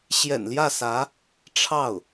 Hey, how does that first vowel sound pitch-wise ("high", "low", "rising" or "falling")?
low